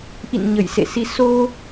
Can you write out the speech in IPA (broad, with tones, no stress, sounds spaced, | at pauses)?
ʔ ḭ˧˨ n ɲ ə˧˩ j s ḛ˧˨ s i˧ s o˧